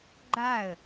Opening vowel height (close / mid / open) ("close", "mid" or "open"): open